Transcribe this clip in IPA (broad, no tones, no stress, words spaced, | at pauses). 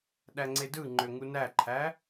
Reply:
ɗæŋ͡ǀedɯŋ͡ǃø ŋunæǃʰæ